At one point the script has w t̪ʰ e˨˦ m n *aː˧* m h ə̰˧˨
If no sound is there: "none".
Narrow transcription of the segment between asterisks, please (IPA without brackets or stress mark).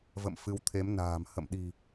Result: a̤ː˨˩